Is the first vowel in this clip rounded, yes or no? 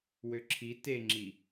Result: yes